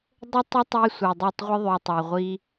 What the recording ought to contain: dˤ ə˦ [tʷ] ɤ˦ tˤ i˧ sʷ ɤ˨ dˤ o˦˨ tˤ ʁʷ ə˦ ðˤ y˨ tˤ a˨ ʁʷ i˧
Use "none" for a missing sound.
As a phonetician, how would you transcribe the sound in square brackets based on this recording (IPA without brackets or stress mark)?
tˤ